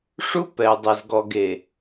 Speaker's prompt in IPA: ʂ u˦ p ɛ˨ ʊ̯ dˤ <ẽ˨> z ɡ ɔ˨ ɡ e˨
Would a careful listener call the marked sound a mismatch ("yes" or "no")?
yes